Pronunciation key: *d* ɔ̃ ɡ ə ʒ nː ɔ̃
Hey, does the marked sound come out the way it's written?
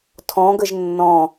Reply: no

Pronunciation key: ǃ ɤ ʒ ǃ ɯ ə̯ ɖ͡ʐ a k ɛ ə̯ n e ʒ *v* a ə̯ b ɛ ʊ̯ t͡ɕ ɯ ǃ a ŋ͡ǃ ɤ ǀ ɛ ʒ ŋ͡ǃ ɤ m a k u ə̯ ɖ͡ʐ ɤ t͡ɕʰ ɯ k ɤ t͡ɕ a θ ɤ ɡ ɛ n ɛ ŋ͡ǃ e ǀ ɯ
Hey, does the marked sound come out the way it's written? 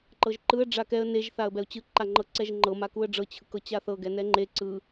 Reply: no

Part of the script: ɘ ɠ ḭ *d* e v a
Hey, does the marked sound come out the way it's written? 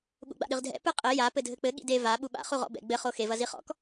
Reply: yes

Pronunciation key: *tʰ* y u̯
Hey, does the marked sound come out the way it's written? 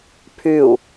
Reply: no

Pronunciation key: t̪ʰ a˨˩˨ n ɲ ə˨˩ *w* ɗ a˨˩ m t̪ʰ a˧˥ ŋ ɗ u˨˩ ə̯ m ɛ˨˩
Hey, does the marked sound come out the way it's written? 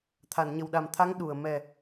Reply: yes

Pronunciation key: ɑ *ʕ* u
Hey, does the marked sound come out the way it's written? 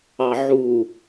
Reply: yes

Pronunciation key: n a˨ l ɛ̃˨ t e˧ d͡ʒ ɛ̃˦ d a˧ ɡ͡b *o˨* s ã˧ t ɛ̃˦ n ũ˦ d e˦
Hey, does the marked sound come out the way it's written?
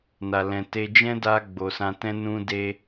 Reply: yes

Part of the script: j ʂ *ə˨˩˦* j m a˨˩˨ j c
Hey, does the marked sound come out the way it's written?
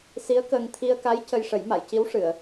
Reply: yes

